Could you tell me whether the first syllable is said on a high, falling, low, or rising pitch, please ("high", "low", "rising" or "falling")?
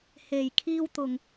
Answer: low